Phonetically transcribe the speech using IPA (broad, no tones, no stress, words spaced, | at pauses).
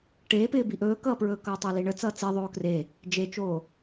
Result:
ʈeːpɪːbi ʔɵːkʌːpɹɵːkʌː tˤoliɳət͡sʌː t͡si ðˤoːkre | d͡ʒet͡ʃoː